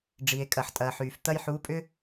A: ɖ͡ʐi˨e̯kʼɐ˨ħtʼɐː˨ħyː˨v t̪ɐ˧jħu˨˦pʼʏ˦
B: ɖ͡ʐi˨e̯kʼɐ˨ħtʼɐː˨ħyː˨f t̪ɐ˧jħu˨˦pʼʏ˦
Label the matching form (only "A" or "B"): B